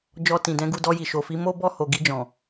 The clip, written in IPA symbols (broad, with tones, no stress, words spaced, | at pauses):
d͡ʒɔ˧tĩ˨dɛ̃˨˦ɡu˦˨ dɔ˧ji˨ʃo˨fi˨˦ mo˦bɔ˦˨ho˨ ɡi˧d͡ʒɔ̃˨